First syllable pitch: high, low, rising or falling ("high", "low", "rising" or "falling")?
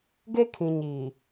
high